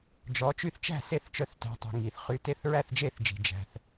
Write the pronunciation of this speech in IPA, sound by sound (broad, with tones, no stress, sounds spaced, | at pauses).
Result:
d͡ʒ ɔ˨˦ t͡ʃ y˥˩ θ t͡ʃ æ̤˥˩ s e˥˩ θ t͡ʃ œ˨˦ θ t æ̤˨˦ tˤ i̤˩ ŋ i˩ θ χ y˨˦ t e˥˩ θ ɹ æ˥˩ θ d͡ʒ e˥˩ θ d͡ʒ i̤˩ d͡ʒ æ̤˩ θ